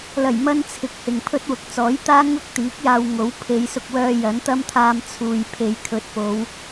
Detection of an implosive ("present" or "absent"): absent